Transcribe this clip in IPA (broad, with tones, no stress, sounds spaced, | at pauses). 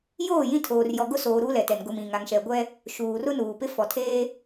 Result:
j oː˦˨ j ĩ˦ tʰ oː˨ r j ɔ˨ ɡ ʊ˦ s oː˨ ɾ uː˦ l ɛ˨ t ɛ˨ n ɡ ʊ˨ m ĩ˨ ŋ a˨ ŋ ʃ ɛ˨ ɡʷ ɛ˦ | ʃ uː˨ r ʊ˦ n uː˨ p ɪ˦ f ɔ˨ tʰ eː˦